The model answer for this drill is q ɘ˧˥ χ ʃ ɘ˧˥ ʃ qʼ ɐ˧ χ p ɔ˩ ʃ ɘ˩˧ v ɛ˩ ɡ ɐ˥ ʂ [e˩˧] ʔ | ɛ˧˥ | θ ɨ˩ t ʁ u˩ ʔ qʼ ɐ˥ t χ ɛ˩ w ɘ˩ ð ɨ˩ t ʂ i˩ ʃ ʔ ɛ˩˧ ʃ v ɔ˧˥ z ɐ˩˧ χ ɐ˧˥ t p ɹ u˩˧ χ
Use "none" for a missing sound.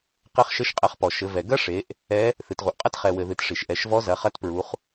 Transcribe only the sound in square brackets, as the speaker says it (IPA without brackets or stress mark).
e˩˧